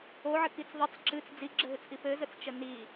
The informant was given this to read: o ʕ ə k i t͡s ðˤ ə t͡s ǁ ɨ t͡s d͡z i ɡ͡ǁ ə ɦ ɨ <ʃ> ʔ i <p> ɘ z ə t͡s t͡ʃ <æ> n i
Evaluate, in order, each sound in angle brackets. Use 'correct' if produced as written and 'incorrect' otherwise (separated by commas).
incorrect, correct, incorrect